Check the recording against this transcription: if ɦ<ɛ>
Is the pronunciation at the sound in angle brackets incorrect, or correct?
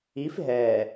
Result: correct